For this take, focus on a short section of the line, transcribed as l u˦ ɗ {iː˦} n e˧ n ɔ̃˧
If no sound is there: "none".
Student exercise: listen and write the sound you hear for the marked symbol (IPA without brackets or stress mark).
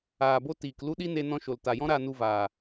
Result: i˦